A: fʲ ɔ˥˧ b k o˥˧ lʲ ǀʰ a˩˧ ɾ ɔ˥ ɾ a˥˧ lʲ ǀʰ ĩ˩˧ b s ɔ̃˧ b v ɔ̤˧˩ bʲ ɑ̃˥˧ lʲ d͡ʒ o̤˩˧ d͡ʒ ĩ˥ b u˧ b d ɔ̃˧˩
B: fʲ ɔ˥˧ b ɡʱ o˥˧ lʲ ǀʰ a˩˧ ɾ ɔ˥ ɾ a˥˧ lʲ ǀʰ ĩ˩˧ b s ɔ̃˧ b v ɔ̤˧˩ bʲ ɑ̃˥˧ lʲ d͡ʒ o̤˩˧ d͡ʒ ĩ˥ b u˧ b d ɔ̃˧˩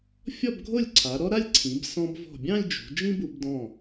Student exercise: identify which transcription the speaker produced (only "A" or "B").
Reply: B